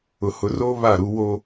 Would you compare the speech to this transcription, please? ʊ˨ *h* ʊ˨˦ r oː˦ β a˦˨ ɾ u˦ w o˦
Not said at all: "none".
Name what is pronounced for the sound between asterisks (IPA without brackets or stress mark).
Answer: h